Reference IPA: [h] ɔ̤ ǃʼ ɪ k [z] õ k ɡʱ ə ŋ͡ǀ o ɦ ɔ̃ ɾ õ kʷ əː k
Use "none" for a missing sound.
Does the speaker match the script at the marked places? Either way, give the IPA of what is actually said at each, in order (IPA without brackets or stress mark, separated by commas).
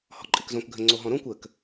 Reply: h, z